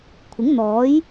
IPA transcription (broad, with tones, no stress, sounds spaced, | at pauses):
kʷʰ ɪ˨˥ ŋ n̪ ɔː˨˥ j